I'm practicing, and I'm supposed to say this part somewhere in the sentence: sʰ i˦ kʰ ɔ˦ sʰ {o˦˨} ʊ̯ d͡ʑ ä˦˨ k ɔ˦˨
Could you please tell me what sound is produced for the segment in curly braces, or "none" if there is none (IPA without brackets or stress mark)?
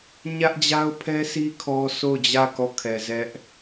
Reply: o˦˨